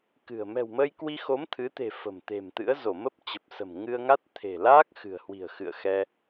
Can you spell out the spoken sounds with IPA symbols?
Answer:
kɨ̤˨˩ə̯ mɛ̤˨˩wməː˧jkwi˧xo˨˦m t̪ʰɨ˨˦t̪e̤˨˩ fə̤˨˩m t̪e̤˨˩mt̪ɨ̰˧˥ə̯ zo˧˩mə˦˥p̚t͡ɕə˨˩p̚sə̤˨˩m ŋɨ˧ə̯ŋa˦˥t̚ t̪ʰe̤˨˩ laː˦˥k̚ xɨ̤˨˩ə̯hwi̤˨˩ə̯xɨ̰˧˨ə̯ xɛ˧

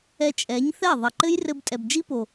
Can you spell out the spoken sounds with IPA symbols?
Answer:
ɛ˧t͡ʃʼɛ˨˦ɲθɛ˦˨ ðˤɐ˨ǃɘ˦jrɘ˧b tʼɛ˨bd͡ʒi˦po˨

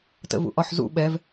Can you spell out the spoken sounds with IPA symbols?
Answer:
tə̰vṵʔɒħzṵ ɓɛv

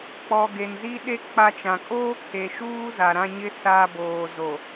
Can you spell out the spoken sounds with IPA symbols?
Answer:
k͡pɔ˨ɡe˨nzi˦ɗe˦ k͡pa˨ t͡ʃã˨kʼoː˦ kʰe˨ʃuː˦za˨ ɾã˦ɲɪ˦ sa˨ boː˨zo˨

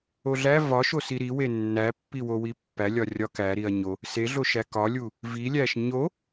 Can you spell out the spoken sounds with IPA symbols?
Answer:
oɮæ vɒʃosi ɾiwe nːæpːiwowi pːælʲɒrʲɒ kæ ɾiɐ̯ɲo | seɮoʃæ kɒlʲu | vilʲæʃ ɲo

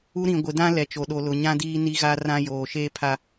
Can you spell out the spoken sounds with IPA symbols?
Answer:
u˦ɾĩ˨ ɡʷɪ˨dã˦ lɛ˨t͡ʃo˨ɗo˨lʊ˨ ɲã˦diː˦ ni˦ɣa˦rã˦joː˨ ʃeː˦ pʰa˦

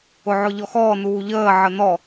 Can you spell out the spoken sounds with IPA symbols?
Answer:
ʊʕʊʎɔxɔː nuːʎəː ʕənɔ

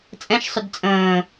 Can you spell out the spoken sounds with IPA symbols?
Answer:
t͡sʼɛ̃ʃsˤʏd t͡sʼə̃ː

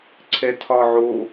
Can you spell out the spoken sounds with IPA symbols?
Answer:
ǀʰɛtʰɒʕo

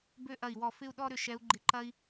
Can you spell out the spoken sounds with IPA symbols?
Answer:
bø˦ʔɐ˧˩i̯wɔ˧˩ fɪ˦u̯ɗɔ˦ ɾʏ˧˩ ʃɛ˨˦u̯ɡ͡ǃɪ˧˩ǃɐ˦i̯

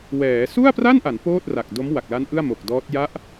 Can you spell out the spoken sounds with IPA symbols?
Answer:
wɛː˩˦ su˥˩a̯pra˥˩nʔa˩˦n poː˥˩t̚ra˨˩k̚ do˦˥mwa˨˩k̚la˦˥n ʔɯ˥˩a̯mo˨˩k̚dɔː˦˥t̚ ja˦˥ʔ

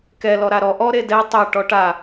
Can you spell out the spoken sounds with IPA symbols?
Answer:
kɛlɔ ɾaɾɔ ʔɔ ɾedɛ tˤɛ ʈɔʈa

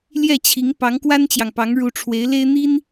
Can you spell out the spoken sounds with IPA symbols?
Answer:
ljɛ˥˩t͡ɕʰi˧˥ŋ pɑ˧˥ŋkwa˥nt͡ɕjɑ˨ŋpɑ˧˥ŋ ɻu˧˥ʈ͡ʂʰwe˧˥ɪ̯le˥ɪ̯ n̪i˥n

